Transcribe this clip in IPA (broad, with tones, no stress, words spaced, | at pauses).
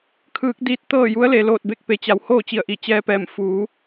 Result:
kʰɯː˧˥k̚ diː˧˥t̚t̪ɤː˥˨ ju˧˥ə̯le˩loː˧˩t̚ be˧k̚pe˩˧t͡ɕa˩˧w hoː˥˨t͡ɕi˧˩ə̯ʔi˧˩ t͡ɕɛː˧pɛː˧˩m fuː˩˧